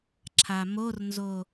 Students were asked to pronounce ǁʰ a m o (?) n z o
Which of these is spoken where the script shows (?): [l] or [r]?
r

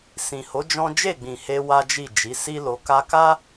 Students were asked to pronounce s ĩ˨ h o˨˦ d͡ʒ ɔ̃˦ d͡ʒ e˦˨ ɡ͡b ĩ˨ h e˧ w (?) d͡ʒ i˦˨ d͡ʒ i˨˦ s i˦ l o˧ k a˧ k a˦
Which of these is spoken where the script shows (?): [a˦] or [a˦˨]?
a˦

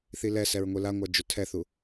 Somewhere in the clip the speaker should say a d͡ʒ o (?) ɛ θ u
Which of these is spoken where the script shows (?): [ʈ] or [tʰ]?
tʰ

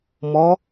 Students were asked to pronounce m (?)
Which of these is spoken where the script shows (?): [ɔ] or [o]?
ɔ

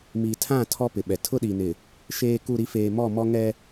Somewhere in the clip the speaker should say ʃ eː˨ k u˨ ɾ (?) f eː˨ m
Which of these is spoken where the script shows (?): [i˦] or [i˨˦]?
i˨˦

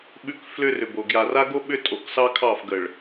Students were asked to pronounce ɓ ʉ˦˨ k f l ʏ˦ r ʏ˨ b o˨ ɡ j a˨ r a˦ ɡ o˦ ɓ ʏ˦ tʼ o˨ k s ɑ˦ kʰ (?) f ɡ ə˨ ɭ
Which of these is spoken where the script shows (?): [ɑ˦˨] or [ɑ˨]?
ɑ˦˨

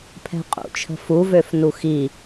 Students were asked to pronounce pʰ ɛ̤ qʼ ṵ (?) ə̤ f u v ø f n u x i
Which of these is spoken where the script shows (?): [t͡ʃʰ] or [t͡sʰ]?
t͡ʃʰ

